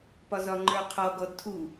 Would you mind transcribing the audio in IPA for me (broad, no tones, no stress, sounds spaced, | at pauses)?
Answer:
p ɒ z ɒ ŋ͡ǃ ə˞ qʰ ɔ ɡ ɔ d tʰ u